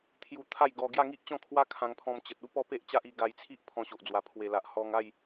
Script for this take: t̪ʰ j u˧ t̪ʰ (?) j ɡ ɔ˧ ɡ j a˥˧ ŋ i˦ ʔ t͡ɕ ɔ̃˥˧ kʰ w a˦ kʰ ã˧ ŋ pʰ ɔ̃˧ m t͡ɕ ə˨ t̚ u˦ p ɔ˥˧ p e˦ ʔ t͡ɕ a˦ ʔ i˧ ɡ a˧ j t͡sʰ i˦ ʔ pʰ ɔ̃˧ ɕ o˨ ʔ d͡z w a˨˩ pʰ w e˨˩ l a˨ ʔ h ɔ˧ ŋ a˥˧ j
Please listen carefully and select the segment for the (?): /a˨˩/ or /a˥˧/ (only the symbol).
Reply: a˥˧